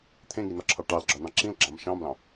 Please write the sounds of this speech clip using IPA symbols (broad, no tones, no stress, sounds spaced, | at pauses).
t̪ʰ ẽ ŋ i n ɒ ǁʰ ɑ ʈ ɑ l ɡ͡ǁ ɒ n ɑ̃ ǁ ĩ l ɡ͡ǁ ɑ̃ m ʃ ɑ̃ m l ɑ̃